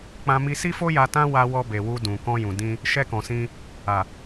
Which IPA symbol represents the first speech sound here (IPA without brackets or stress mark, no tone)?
k͡p